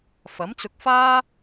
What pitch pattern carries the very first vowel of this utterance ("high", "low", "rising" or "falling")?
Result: rising